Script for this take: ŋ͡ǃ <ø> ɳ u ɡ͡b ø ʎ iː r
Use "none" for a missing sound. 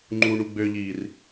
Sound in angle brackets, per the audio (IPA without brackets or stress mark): u